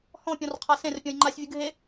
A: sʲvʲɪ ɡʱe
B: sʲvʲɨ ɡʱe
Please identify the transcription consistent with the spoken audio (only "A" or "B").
B